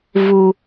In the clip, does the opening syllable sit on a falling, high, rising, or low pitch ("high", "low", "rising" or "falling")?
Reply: high